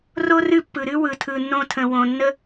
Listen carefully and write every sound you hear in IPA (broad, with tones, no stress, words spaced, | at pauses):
ro˦rɨ˦˨pːɯ˨ɾɨ˦ wɯ˨tʰɯ˨nːõ˧tʰə̃˨ wõ˨nːə˦